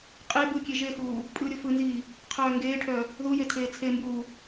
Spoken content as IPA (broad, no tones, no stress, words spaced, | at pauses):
qʼe bɯkʲe ʒexuː | pʼɯːɾʲofɯnziː | qʰœːŋɡeːʈʰœ | ðuje tʰeːt͡sʰembuː